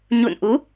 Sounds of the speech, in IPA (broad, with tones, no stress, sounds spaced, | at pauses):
ɲ ṵ˧˨ n ʔ u˨˦